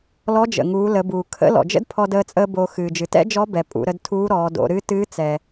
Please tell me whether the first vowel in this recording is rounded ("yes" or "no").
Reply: yes